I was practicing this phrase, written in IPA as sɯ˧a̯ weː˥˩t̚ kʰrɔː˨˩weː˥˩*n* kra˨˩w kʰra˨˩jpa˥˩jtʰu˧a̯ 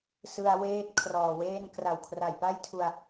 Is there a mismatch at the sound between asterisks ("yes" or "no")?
no